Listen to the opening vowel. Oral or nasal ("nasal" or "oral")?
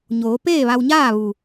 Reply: oral